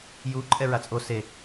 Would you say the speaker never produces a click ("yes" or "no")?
no